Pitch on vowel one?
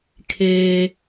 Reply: high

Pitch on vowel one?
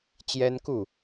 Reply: high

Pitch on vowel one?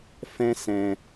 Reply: high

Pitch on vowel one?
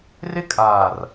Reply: high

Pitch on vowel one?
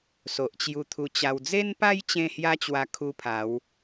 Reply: low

